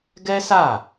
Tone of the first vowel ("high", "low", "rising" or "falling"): high